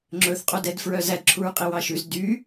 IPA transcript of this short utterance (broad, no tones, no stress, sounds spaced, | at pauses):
ŋ͡ǁ ɵ θ qʼ o d ɛ d f ɹ œ z æ d ǁʰ u ɹ qʼ i w ɑ ʃ ʉ z d y